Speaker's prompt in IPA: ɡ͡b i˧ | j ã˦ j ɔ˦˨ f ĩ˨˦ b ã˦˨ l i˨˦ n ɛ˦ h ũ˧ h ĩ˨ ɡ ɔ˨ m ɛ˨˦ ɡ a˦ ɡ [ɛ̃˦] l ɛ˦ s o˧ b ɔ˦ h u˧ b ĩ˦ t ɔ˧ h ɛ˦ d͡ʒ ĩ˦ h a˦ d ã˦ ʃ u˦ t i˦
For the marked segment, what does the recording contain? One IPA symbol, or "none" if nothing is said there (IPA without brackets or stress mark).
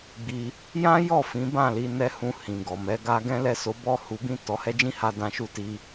ɛ̃˦